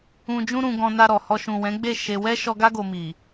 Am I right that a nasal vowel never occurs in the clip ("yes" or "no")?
no